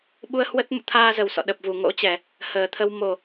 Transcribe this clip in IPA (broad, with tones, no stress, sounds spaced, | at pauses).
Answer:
ɓ u˧ ə̯ h w ə˦˥ t̚ m ṵ˧˨ t̪ʰ aː˧ z ə˨˩ w s ɔ̰˧˨ ɗ ə˨˩ p̚ v u˧˩ ŋ o̰˧˥ t͡ɕ ɛ˧˩˨ | h əː˨˩ t̪ʰ ə˧ w m o˨˩